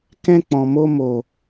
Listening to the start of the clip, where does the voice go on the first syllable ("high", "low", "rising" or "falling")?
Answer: high